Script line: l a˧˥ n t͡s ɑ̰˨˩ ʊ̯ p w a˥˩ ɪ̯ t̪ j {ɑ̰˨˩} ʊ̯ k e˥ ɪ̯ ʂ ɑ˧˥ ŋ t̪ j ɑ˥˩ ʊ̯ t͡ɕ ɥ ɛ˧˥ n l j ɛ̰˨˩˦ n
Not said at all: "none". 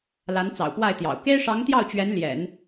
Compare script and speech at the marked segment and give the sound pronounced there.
ɑ̰˨˩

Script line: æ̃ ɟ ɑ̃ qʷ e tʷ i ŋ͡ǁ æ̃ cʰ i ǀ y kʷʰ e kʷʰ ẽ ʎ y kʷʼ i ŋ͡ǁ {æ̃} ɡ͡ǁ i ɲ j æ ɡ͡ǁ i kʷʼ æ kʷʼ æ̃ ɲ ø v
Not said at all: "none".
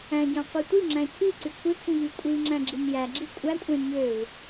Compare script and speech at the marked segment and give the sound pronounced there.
æ̃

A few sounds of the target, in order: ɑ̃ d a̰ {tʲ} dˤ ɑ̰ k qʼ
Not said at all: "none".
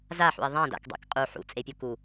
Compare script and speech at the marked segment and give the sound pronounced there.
k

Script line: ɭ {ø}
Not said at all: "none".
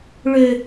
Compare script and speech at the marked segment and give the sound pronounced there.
ø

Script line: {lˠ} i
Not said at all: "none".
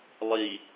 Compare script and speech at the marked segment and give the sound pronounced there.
lˠ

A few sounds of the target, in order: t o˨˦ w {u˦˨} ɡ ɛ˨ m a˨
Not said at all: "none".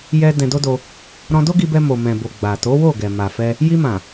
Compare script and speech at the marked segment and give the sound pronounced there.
o˦˨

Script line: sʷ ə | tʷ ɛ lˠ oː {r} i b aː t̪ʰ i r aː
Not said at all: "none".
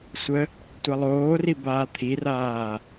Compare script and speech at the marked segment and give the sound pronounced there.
r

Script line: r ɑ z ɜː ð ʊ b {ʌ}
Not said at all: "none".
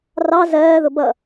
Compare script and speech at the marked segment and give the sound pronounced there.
ʌ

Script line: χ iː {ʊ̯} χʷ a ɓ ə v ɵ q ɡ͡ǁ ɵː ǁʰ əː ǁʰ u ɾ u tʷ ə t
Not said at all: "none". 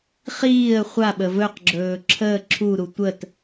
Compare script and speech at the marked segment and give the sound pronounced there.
ə̯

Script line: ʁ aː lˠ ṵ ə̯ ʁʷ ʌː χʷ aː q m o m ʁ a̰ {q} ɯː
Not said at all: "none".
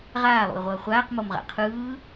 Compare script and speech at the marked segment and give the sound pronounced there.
qʰ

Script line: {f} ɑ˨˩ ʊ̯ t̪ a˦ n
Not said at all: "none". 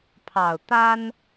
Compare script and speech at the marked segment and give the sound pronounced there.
pʰ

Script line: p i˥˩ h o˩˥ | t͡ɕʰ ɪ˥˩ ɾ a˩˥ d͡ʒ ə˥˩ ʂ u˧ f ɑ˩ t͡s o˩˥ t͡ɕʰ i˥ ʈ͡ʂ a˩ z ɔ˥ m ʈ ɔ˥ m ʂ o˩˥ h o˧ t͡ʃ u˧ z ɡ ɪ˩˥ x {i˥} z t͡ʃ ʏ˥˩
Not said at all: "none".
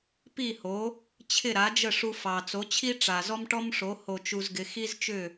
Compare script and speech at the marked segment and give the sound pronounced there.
i˥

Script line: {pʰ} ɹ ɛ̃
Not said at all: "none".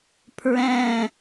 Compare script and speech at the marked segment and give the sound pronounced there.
pʰ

